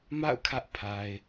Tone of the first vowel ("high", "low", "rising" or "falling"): falling